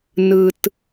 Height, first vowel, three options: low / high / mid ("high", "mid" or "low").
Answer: high